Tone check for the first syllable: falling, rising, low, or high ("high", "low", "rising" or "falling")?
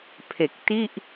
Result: low